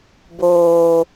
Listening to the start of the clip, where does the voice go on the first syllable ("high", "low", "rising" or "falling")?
low